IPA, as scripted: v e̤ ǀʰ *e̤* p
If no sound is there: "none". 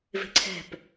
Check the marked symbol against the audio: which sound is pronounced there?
ɛ̤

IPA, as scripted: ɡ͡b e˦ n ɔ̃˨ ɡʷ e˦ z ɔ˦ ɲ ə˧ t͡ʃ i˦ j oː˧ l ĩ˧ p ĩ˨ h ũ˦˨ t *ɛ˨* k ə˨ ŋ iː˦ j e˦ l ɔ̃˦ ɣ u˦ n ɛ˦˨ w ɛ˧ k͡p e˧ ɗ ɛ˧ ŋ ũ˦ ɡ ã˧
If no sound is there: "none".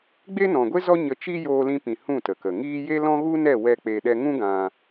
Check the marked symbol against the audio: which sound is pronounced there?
ə˨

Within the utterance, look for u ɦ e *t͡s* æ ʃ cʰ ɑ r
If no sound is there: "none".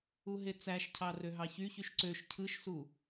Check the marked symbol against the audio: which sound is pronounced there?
t͡s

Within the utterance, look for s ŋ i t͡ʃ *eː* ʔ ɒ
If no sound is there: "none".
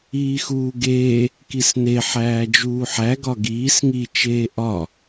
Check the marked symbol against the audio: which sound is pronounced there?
eː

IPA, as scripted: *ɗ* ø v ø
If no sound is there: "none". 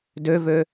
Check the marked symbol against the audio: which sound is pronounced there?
d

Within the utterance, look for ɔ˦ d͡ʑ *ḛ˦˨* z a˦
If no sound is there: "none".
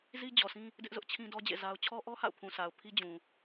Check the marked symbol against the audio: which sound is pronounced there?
ḛ˦˨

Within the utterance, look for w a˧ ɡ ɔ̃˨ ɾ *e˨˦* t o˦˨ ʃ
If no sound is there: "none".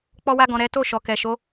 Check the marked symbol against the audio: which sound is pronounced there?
ɛ˨˦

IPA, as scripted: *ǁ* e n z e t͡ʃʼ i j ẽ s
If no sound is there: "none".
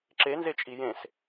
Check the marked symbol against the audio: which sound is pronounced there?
ǁ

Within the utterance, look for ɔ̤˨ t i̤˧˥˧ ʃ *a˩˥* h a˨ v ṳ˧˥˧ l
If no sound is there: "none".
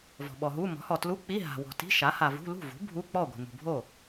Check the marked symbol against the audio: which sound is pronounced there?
a˩˥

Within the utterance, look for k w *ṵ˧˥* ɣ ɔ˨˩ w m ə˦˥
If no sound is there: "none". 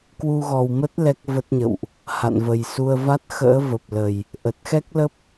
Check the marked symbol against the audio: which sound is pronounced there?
u˧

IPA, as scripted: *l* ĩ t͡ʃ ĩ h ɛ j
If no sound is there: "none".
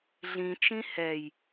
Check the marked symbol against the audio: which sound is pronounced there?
ɮ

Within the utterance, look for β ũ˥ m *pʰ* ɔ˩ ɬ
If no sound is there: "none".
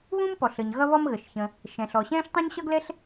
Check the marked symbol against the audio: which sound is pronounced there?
p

